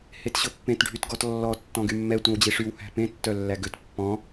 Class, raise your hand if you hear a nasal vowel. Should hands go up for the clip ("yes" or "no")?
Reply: yes